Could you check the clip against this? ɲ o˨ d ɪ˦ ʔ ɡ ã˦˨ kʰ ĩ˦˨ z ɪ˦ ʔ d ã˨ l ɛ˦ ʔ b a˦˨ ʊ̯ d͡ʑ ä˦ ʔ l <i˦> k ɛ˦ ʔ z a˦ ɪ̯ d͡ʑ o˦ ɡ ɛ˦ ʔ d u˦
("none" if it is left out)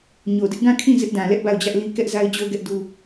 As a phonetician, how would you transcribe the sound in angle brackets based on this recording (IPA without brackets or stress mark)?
i˦